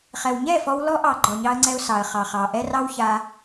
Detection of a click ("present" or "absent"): present